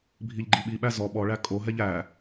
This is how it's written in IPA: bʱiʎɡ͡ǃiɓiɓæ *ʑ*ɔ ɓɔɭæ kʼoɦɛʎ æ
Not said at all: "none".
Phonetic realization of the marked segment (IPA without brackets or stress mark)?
z